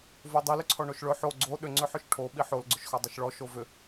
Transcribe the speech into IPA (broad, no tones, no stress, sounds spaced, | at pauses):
v o dˤ i l ʏ ǀʰ ɔ ɳ o ʃ ɭ ɵ ħ o ɡ͡ǀ o ɗ ʏ ŋ͡ǀ ʏ ħ ʏ ʃ ʈʰ o ɓ i ħ o l ɡ͡ǀ ʏ ʃ x ɔ dˤ ɵ ʃ ɭ ɔ ʃ o v ʏ